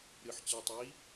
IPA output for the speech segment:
ɾɨħ t͡ɕɜtˤi

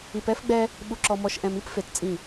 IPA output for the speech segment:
i˨p ɛ˦fɡ͡bɛ˦ | ɓu˨ǁɔ˨mɔ˨ʃʔɛ̃˨m i˦p fe˨t t͡sʼĩ˦˨

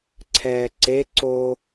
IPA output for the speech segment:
ǀʰɛːǀe ǀo

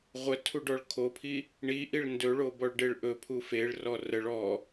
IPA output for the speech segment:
ʁʷətʰuɖɔɭ kʰopʰi | ɳiʔiɭ ndɵɭobɔɭɖeɭ ʔɵpʰu feɭrɔ rəɭ ɔ

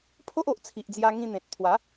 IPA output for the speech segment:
pʰo˦ʔo˨ʔt͡sʰi˨ʔd͡zja˧ ŋĩ˧n̪ẽ˨t̚t̪ʰwa˨˦

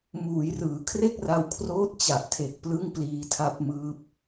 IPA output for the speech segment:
muː˩˦jrɯː˩˦ kʰre˥˩k̚ra˧wkʰroː˦˥t̚ t͡ɕa˨˩ʔtʰe˨˩k̚ plɯ˥˩ŋpliː˧tʰa˦˥p̚mɯː˦˥p̚

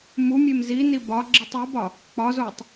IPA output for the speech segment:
mumʲem zini bɒ ɡ͡ǁitˤobɒ | k͡pɒzotˤ

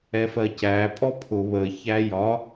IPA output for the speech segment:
ɛfɜcæ pʼɔpʰʊ βə çæjɒ

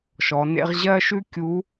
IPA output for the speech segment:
ʃɔ˩˧nḛ˥ʁ ʑɜ˥ ʃʉ˥kʲu˧˥

